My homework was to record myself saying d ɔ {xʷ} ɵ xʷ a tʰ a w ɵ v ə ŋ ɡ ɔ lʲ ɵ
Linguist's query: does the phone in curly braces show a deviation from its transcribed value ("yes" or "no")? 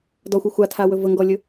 no